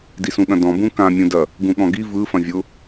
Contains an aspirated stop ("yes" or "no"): no